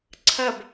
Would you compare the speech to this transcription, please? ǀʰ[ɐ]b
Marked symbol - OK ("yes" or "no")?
yes